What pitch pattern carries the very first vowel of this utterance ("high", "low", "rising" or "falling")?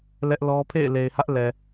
high